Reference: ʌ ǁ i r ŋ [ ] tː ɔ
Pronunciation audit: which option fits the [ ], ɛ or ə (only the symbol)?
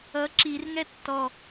ɛ